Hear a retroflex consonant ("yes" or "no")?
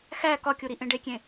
yes